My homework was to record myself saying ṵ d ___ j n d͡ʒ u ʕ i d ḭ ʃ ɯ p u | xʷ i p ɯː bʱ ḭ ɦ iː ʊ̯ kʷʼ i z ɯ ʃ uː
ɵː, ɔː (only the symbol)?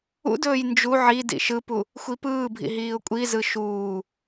ɵː